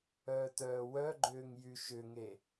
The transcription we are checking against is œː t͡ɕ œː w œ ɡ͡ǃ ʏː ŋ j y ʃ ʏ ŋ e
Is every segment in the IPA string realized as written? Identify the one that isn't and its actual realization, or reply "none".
t͡ɕ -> t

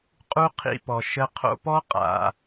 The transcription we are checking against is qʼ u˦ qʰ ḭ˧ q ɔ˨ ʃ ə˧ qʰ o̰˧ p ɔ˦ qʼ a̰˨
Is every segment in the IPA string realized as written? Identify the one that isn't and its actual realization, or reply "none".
q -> p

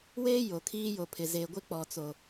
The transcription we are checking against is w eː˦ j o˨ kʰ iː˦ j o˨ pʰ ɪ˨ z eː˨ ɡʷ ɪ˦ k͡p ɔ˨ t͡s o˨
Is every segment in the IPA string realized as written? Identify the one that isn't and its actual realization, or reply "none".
none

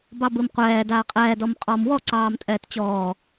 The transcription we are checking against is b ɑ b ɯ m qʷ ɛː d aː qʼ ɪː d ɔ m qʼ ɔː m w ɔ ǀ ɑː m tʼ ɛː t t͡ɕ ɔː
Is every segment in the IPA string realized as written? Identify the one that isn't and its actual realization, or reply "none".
ɪː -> ɛː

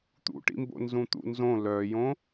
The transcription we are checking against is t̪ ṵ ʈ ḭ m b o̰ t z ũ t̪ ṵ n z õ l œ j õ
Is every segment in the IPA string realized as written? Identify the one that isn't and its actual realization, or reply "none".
t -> n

